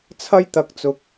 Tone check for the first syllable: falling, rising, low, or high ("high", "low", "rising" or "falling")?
high